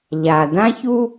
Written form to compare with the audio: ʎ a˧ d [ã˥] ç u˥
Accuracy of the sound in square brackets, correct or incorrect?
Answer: correct